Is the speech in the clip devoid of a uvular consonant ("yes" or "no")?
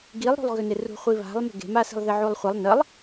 no